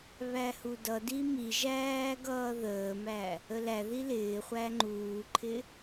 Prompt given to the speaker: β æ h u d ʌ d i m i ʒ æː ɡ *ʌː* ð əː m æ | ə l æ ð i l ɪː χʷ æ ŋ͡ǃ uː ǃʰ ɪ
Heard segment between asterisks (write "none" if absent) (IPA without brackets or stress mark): ʌː